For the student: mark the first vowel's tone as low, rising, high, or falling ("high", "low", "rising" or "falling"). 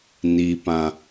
low